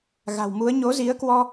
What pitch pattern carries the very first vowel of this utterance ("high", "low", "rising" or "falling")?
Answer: low